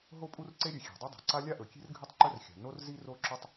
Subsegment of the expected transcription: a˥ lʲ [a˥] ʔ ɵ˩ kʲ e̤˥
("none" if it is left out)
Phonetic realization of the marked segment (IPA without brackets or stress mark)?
a˥